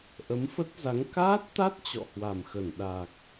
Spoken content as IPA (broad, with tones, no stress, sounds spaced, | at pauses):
ʔ ə˨˦ m f ə˦˥ t̚ z a˨˦ ŋ k aː˦˥ t̚ t̪ a˦˥ t̚ t͡ɕ ɔ̰˧˨ h w a˨˩ m x ə˧˩ n ɗ a˨˩ k̚